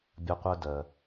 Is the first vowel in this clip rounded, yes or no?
no